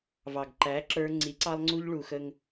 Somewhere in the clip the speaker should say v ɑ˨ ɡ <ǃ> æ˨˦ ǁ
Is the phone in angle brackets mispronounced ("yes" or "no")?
no